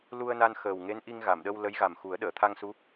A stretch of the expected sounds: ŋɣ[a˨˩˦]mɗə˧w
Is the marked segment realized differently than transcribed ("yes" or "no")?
yes